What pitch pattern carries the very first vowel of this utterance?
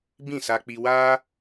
falling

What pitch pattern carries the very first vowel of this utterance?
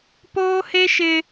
high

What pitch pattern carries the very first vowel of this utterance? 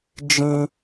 high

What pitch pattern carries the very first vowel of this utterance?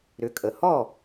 rising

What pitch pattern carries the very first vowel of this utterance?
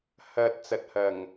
low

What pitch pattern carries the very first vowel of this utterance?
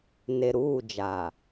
low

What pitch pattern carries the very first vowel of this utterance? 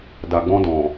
low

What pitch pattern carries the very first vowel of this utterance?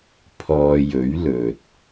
low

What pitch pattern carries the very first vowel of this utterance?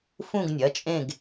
falling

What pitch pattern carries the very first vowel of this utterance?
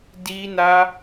high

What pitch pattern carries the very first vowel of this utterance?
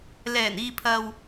low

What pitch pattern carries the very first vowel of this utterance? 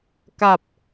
low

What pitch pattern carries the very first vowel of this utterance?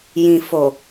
low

